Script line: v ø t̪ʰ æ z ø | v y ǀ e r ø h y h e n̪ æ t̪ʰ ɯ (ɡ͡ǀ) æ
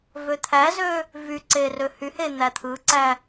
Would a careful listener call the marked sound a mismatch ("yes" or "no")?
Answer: yes